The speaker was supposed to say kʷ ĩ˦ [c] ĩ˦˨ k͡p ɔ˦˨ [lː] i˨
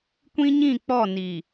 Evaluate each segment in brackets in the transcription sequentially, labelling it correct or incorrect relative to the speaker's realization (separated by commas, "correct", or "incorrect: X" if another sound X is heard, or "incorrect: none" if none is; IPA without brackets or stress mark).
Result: incorrect: ɲ, incorrect: n